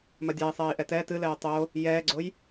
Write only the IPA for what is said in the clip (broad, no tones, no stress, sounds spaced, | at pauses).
m ɐ dʲ a i̯ sˤ ɛː i̯ ʔ ɛ t ɛː t ɨ l ɛː tˤ o | j ɛː ɡ͡ǀ o j